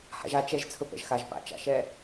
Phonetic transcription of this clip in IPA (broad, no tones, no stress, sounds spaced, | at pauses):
h a̰ ʒ a t͡ʃ ɛ ʒ t͡sʰ ɵ p ɛ̰ ʒ x a ʒ p a̰ t͡ʃ a̰ ʃ ɛ